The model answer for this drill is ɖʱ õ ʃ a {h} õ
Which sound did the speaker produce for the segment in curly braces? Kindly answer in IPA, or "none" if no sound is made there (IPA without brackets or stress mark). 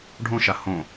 h